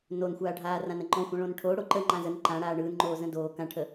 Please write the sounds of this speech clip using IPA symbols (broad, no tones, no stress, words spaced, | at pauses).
nonxʷaːɖʱaː rãnəŋ͡ǃɔ̃xʷə̃ ɭõnʈʰo ɽoǃə ŋ͡ǃãzən ǃãɽaː ɳɯːnŋ͡ǃoː zə̃doː kãʈʰə